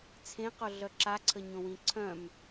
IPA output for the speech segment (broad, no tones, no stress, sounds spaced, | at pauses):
t͡sʰ ẽ q o ɮ œ ǁ a ǀʰ ə ɲ õ w ĩ ǀʰ œ̃ m